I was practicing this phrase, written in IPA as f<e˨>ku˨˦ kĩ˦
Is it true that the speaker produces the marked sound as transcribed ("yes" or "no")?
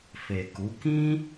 yes